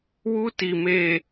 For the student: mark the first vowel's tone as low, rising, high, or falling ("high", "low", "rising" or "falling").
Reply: high